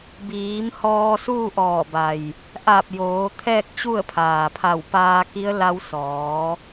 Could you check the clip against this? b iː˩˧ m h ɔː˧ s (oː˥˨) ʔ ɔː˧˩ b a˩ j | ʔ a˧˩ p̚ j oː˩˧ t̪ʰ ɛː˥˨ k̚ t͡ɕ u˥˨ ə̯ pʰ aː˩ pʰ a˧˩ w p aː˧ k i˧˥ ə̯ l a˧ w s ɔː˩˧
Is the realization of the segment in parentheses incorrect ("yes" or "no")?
yes